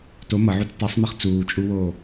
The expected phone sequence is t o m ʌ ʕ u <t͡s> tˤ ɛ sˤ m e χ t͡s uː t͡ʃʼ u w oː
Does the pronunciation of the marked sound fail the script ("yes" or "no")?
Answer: no